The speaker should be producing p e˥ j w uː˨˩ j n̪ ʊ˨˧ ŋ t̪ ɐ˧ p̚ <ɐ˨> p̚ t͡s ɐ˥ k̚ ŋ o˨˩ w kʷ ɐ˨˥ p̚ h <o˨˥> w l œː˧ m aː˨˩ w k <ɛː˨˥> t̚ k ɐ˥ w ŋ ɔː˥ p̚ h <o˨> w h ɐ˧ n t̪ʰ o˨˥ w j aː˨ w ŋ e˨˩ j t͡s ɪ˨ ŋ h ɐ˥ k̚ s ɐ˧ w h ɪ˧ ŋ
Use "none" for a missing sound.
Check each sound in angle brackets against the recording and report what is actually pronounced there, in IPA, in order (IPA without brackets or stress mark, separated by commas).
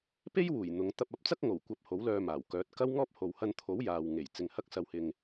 ɐ˨˥, o˨˥, œː˨˥, o˨